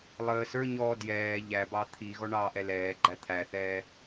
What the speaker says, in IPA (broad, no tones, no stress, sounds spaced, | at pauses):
lˠ əː s ə˞ ɲ ɔː d j ɛː ʎ æ b ɑ t̪ʰ i ɣ ɔ ɳ ɑː ʔ ɛ l ɛː ɡ͡ǃ æ t̪ʰ æ θ ɛː